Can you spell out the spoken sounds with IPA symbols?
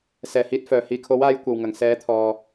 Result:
s ɛː˨˩ h iː˨˥ t̚ f œː˨˩ h iː˨ kʰ o˨˥ w aː˨˧ j kʷ ɐ˨ w ŋ ɐ˨˩ ŋ s ɛː˨˥ t̪ʰ ɔː˨

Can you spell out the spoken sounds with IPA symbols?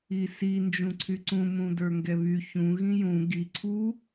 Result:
i s i n d͡ʒ ũ ǀʰ y ǀ ũ m ũ d ə˞ ŋ ɡ ɛ β y ç ũ ɣ ĩ j ũ ɡ i ǀʰ u

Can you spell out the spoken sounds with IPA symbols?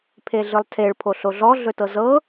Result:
pʰ e ɮ ɯ lˠ tʰ e ɭ pʰ o ɬ o ɮ ɔ ɮ ɵ t ɤ z ɤ

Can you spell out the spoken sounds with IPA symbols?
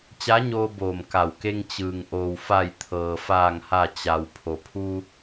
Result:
t͡ɕ a˧˥ ɲ oː˧ b oː˧˩ m k a˧˩ w k e˧ ŋ t͡ɕ ɯː˩ ŋ ʔ oː˩ w f a˧˩ j t̪ʰ ɤː˩ f aː˧˩ ŋ h a˧˩ t͡ɕ a˩ w pʰ o˩ pʰ u˧

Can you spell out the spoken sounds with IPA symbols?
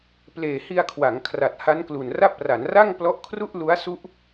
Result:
p l eː˨˩ h i˧ a̯ kʰ w a˩˦ ŋ kʰ r a˨˩ t̚ h a˦˥ n k l u˨˩ n r a˥˩ p̚ r a˩˦ n r a˥˩ ŋ p l ɔ˦˥ ʔ kʰ r u˥˩ ʔ l u˦˥ a̯ s u˦˥ ʔ

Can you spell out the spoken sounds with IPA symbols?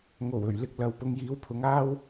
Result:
ŋ o˨˩ w ɵ˨˩ ɥ l ɪ˧ k̚ l ɐ˨ w p ʊ˨˧ ŋ j iː˨˧ w pʰ ʊ˨˧ ŋ aː˥ w

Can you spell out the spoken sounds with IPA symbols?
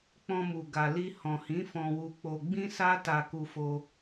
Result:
k͡p ɔ̃˧ m u˨ ɡ a˨ l i˧ h ɔ̃˨ h ĩ˨˦ f ɔ̃˧ w u˧ k͡p o˧ ɡ͡b ĩ˦ s a˦ t a˧ k u˧ f o˧

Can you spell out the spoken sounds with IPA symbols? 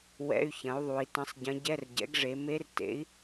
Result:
w ɛ̰˧˥˧ y̯ ç ɐ̃˩˥ u̯ ðˤ u˩˧ i̯ t ɐ̃˧˥ sˤ ɟ ɐ̃˧˥ ɟ ɛ˧˥˧ r ɟ ɛ̰˩˥ ɡ ʐ e˩˧ m e˧˥ r t ḛ˩˥ i̯

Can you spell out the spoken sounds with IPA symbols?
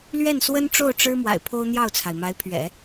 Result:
l ɥ ɛ˥˩ n s w ə˥ n ʈ͡ʂ o˥˩ ʊ̯ ʈ͡ʂ ɻ̩˥ m w a̰˨˩ ɪ̯ pʰ o˥ ʊ̯ n̪ j ɑ˥˩ ʊ̯ t͡sʰ a˩ ɪ̯ m a˧˥ ɪ̯ pʰ ɥ ɛ̰˨˩˦

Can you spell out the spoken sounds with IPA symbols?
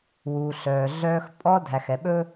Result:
w uː˨ ɬ œː˨ ɮ œː˦ x pʼ ɔ˦ dʱ æ˨ x ɛ˨ ɓ ɵ˦

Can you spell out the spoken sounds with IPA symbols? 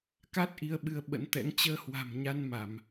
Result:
k a˦˥ t̚ ʔ i˧ ə̯ ɓ ɨ˨˦ ə̯ ɓ ə̰˧˥ n t̪ ɛ̰˧˥ ŋ t͡ɕ əː˧ h w a̤˨˩ m ɲ a˧ n m a˧˩˨ m

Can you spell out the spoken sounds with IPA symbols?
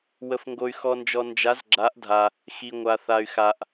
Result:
w ə˨ f ŋ ɡ o˨ y̯ x ɔ˨ n d͡ʒ ɔ˨ n d͡ʒ a˨˦ z ɡ͡ǁ a˨˦ ʔ dʱ a˨ | x i˨ ŋʷ a˨ θ a˨ y̯ x a˨ ʔ

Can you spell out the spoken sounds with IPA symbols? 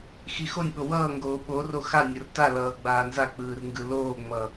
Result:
x i x o nʲ ɓ o w ʌː ŋ ɡ oː ɓ o r o x a nʲ o r t a l ʌː ɡ͡b aː n z a k͡p ɯː r ŋ ɡ ɯ l oː ŋ͡m ʌ

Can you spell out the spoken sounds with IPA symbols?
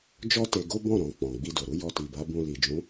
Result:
d͡ʒ ɔ˦ t e˧ ɡ o˦ b ɔ̃˦˨ ɾ ɔ̃˨ k͡p ɔ̃˨ ɡ͡b i˧ d o˨ ɾ u˨˦ j ɔ˧ t i˨ b a˨˦ b ũ˧ l i˨ d͡ʒ ũ˨˦

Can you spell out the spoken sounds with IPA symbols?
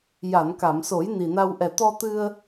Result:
j a˨˩˨ n k a˨˩˨ m s o˨˩˦ j n i˨˩ n a˧ w ʔ ɛ˨˩ t̪ ɔ˧ t̪ ɨ˧ ə̯

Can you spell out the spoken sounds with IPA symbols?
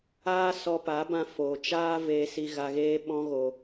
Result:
aː˦ s ɔ˧ p a˨˦ b ã˧ f o˨ t͡ʃ aː˦ v eː˧ s i˧ ɣ a˧ ɣ eː˦ ɓ ɔ̃˦ ɣ o˧

